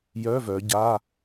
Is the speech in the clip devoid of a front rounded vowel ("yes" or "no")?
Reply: no